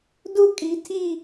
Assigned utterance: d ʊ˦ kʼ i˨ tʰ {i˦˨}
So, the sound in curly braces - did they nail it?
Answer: yes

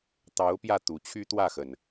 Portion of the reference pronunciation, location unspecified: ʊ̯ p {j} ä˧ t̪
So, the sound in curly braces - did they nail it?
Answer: yes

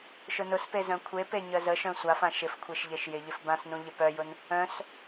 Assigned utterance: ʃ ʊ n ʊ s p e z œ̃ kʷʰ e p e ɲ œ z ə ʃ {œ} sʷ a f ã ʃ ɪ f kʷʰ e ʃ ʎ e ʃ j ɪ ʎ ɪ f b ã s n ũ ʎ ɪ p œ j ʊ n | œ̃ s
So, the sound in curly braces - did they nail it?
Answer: no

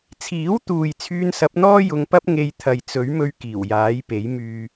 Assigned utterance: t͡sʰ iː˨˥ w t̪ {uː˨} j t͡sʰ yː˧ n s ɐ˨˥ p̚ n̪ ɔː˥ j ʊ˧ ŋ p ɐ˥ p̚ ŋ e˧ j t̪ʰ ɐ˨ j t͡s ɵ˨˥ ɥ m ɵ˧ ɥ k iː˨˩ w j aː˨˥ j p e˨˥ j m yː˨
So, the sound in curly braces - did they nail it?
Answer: yes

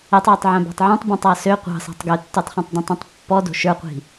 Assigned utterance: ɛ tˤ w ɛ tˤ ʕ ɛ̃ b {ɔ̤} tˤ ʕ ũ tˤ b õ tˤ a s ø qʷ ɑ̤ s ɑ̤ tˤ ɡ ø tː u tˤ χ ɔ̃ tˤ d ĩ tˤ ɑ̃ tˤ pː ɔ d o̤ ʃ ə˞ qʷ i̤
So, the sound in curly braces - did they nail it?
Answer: no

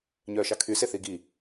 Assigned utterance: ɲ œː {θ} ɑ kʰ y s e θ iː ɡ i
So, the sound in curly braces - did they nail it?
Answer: no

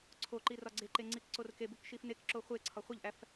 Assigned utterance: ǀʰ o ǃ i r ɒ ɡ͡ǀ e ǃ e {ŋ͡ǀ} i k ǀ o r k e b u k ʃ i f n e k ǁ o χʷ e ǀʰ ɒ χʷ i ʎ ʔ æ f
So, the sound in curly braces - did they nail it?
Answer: yes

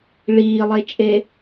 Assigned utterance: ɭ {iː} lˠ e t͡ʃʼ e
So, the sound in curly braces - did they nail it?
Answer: yes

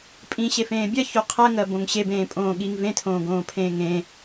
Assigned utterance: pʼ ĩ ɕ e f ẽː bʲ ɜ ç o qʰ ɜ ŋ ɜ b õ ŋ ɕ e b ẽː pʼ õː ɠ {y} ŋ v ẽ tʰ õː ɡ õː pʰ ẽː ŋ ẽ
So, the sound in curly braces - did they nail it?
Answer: no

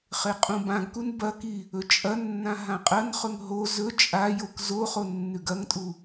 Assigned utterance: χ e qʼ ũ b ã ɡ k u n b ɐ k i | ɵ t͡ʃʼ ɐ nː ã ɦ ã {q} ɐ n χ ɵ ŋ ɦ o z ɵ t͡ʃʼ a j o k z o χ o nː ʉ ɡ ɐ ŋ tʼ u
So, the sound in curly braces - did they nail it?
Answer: no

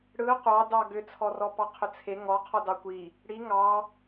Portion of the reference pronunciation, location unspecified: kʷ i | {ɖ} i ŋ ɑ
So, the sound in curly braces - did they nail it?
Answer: no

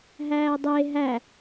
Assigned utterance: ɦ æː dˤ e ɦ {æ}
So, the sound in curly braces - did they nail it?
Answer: yes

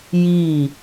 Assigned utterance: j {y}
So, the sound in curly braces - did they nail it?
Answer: no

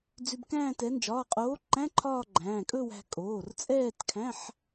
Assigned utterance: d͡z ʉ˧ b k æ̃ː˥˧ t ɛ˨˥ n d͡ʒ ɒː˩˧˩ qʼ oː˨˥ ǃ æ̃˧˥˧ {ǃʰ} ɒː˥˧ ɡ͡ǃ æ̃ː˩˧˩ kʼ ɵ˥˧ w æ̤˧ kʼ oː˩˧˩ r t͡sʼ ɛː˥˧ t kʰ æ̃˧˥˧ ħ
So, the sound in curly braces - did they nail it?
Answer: yes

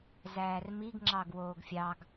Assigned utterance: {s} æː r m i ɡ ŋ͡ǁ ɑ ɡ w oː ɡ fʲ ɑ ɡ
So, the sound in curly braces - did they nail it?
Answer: no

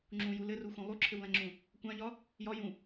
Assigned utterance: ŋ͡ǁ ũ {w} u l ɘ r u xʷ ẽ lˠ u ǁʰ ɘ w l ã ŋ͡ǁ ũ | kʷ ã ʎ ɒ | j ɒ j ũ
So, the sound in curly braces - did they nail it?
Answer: no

